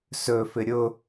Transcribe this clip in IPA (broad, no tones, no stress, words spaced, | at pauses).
sɵfɪ ɾʲʊ